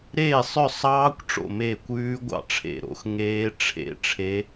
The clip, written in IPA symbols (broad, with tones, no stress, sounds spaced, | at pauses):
ɾ eː˥˩ sˤ œ˥˩ sˤ ɑː˦˥ kʷ ʈ͡ʂ o̰˥˩ m eː˥˩ kʷ ʉː˦˥ ɡʷ ɑ̰˥˩ ʈ͡ʂʰ ḛ˥˩ ɾ o̰˦˥ x ŋ eː˦˥ ʈ͡ʂʰ ḛ˦˥ ʈ͡ʂʰ e˦˥